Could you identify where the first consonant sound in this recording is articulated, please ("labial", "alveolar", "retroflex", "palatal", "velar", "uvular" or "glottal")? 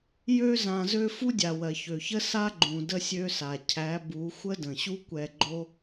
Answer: palatal